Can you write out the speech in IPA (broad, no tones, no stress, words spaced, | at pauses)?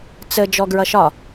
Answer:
t͡sə d͡ʒɔɡɹʌʃɒ